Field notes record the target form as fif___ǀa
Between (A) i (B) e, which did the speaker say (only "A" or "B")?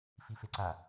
B